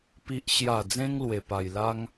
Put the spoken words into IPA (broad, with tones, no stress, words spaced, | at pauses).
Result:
pi˨ʔɕja˨˩d͡zẽ˧ŋ lwe˨˩pa˨˩j la˦ŋ